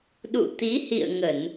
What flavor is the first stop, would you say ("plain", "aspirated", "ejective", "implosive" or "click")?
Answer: implosive